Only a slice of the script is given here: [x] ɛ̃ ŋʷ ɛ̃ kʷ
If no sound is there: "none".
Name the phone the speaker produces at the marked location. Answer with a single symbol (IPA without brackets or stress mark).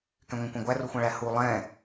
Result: k